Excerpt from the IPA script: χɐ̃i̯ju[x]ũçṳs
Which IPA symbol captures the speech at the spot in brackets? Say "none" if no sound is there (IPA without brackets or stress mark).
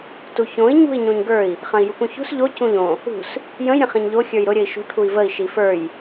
k